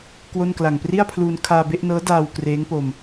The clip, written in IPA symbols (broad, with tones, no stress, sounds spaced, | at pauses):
k w o˥˩ n k l a˨˩ ŋ p r i˥˩ a̯ pʰ l uː˧ n kʰ aː˧ b e˥˩ ʔ n ɤː˦˥ d aː˧ w k r eː˦˥ ŋ p o˧ m